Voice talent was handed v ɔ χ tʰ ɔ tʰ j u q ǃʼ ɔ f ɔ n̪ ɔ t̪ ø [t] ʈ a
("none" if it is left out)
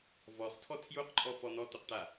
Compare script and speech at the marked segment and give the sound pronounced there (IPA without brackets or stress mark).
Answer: q